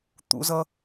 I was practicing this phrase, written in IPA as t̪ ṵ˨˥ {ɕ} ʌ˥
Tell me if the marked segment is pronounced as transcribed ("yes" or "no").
no